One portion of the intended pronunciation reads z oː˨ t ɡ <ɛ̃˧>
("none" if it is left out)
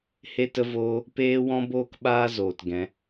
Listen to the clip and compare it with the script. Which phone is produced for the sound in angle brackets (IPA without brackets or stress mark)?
ɛ̃˨˦